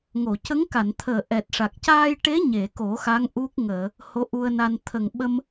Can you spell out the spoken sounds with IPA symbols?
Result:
ŋ o˨˩˨ c ə˧˥ ŋ k a˨˩˨ n t̪ʰ əː˨˩ ʔ ɛ˨˩ t̚ ʂ a˨˩ k̚ c aː˧ j ʈ e˧˥ ɲ e˨˩˨ k o˨˩˦ x a˧˥ ŋ ʔ u˦˥ k̚ ŋ əː˨˩˨ | h o˧˥ ʔ u˧ ə̯ n a˧ n t̪ʰ ə˨˩ ŋ ɓ ə˧ m

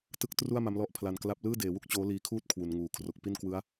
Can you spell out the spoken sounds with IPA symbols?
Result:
t ɯ˦˥ k̚ t r u˥˩ a̯ m a˦˥ m l ɔ˦˥ ʔ pʰ l a˧ n k l a˥˩ p̚ l ɯː˥˩ d eː˩˦ w u˥˩ k̚ t͡ɕ oː˦˥ l iː˧ kʰ uː˥˩ t̚ kʰ w u˩˦ n ŋ uː˨˩ kʰ r o˦˥ k̚ p i˥˩ n k w ɯ˦˥ a̯

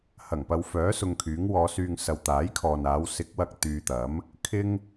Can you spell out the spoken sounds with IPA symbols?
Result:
h ɐ˨˩ ŋ p ɐ˧ w f œː˨˥ s ʊ˨ ŋ kʰ yː˨˥ ŋ w ɔː˨˧ s yː˧ ŋ s ɐ˨ w t̪ aː˨˥ j kʰ ɔː˨ n aː˨˧ w s ɪ˨˥ k̚ w ɐ˨ k̚ t̪ yː˧ t̪ ɐ˨˥ m | kʰ ɪ˥ ŋ

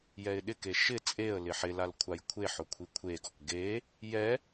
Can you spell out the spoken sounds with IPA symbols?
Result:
j ɛ ɪ̯ ɗ ɪ k e ʃ ɪ t͡sʼ e ə̯ l ɪ ħ ɪ l a l kʷʰ a j kʷʰ e ħ ʊ kʷʰ i kʷʰ e ɡ ɔ k ɡ e | j ɛ

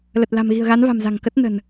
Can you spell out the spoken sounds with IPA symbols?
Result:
l ə˨˩ t̚ l a̤˨˩ m ɣ i̤˨˩ ə̯ ɣ a˨˦ n v a̤˨˩ m z a̤˨˩ ŋ k ə˦˥ t̚ n ə̤˨˩ n

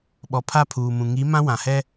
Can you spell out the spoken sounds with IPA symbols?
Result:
ɓ ɔ˨ pʰ a˦˨ pʰ uː˨ m ũ˨ ŋ i˨˦ m ã˦ w ã˨ h ɛ˦

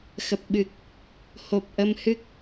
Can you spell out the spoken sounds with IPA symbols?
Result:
x ə˨˩ p̚ ɓ ɨ˨˩ k̚ | h o˨˩ p̚ ʔ ə˧ m h ɨ˦˥ k̚

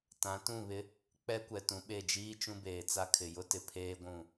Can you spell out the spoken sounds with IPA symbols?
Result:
t ã˨˦ t ũ˦˨ β ɪ˦ | k͡p ɛ˦ kʷ ɛ˨ t ũ˨ ɓ e˦˨ d͡ʒ iː˦ t͡ʃ ũ˦ b eː˨ t͡s a˦ kʰ ɪ˨ j ʊ˦ t ɪ˨ pʰ eː˦ ɡʷ ũ˦˨

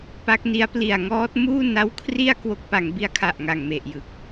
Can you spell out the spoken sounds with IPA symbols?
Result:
p a˦˥ k̚ n i˦˥ a̯ p l i˨˩ a̯ ŋ ɔː˦˥ t̚ m uː˥˩ n a˦˥ w kʰ r i˥˩ a̯ k w o˦˥ k̚ p a˩˦ ŋ b i˧ a̯ kʰ a˨˩ ʔ ŋ a˨˩ ŋ m e˨˩ ʔ j ɯ˨˩ k̚

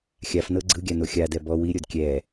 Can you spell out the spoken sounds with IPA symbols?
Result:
xʲ a f n ɤ ɡ͡ǀ ɯ ɡʲ a n o xʲ a d ɛ b ɔ w i ɾʲ o d kʲ ɛ

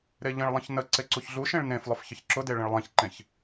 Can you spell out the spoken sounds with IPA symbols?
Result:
ɾ e ʎ ə̃ ɭ lˠ ə̃ ç n ə ǀ e ǀ u ç ɮ u ʃ ẽ ɭ n ẽ f lˠ ʊ f ç ə ç ǁ ʊ d e ɭ ə̃ ɭ lˠ ẽ ç ǃ ẽ ç

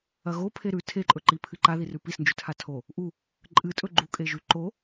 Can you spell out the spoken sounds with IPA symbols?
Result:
ɐ ɣ o pʰ e ɾ ʉ tʰ e ǃʼ ɵ ǃ i pʰ ɨ ǃ a ð i r ʉ p i s n d͡ʒ ʉ tʰ a tʰ o | ʔ u | ǃʼ ɨ tʼ ɵ ɡ͡ǃ u kʼ e ʒ ʉ ǃ o

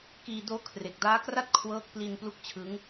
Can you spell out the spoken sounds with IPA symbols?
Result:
k iː˧ d oː˦˥ kʰ r e˨˩ k̚ d aː˦˥ k r a˥˩ t̚ kʰ w ɤː˦˥ k̚ p l i˧ n p l u˥˩ k̚ t͡ɕʰ ɯ˦˥ ŋ

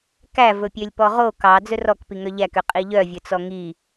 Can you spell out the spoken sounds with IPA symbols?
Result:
k æ v ɵ pʲ ø lʲ p ɔ ʁ o k ɑ d͡z ɵ r ɔ k p i ŋ œ ʎ æ k ø qʼ i ʎ œ vʲ ɵ t͡s ɔ ŋ i

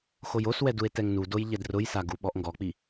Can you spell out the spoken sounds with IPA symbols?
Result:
x o j o s w ɛ d u e̯ t ɛ ŋ n u d o j ʎ ɛ d r ʊ j s a ɡ u ɓ ɔ ʔ ŋ ɡ ɔ k͡p i

